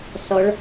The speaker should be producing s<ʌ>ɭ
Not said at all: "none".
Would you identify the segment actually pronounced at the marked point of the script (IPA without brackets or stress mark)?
ʌ